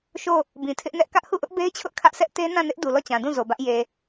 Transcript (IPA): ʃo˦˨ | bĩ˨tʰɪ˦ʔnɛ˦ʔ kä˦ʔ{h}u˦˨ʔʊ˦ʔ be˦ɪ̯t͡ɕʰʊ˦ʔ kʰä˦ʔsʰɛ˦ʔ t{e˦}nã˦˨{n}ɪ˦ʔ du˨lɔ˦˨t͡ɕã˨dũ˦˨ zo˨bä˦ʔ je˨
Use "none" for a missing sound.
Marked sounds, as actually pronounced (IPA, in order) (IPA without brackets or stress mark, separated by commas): h, e˦, n